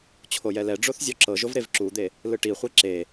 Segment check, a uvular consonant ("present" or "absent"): present